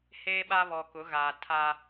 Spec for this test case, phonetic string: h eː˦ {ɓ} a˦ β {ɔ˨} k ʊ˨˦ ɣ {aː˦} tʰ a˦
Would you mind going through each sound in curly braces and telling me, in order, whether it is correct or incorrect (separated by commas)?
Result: correct, correct, incorrect